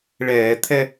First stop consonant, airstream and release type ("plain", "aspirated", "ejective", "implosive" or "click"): aspirated